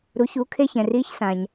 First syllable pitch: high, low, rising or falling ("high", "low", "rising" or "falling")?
rising